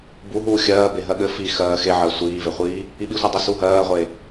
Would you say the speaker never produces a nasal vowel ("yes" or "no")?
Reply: yes